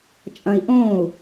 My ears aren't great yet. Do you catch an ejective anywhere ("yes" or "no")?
yes